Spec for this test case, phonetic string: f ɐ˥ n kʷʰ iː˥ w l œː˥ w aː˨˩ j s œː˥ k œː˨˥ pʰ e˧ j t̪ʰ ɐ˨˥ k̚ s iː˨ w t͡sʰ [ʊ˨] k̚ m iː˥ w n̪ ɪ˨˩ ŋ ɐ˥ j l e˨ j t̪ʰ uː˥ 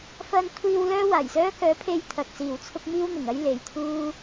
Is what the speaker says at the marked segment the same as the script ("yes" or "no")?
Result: no